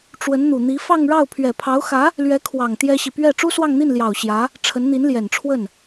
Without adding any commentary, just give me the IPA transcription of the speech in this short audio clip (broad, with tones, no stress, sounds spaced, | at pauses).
ʈ͡ʂ w ə˧˥ n n̪ u˨˩ n̪ i˧˥ f ɑ˥˧ ŋ ɻ ɑ˥˩ ʊ̯ pʰ ɥ ɛ˨˩ pʰ ɑ˧˥ ʊ̯ x ä˧˥ | l ɥ ɛ˧˥ kʰ w ɑ˨˩ ŋ t̪ j ɛ˥ ɕ i˨ p ɥ ɛ˥˩ ʈ͡ʂ u˥ s w ɑ˥˧ ŋ n̪ i˥˩ n l j ɑ˨˩ ʊ̯ ɕ j ä˧˥ | ʈ͡ʂʰ ə˧˥ n n̪ i˧˥ n l j ɛ˨˩ n ʈ͡ʂʰ w ə˥˩ n